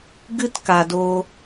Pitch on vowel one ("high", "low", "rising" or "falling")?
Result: high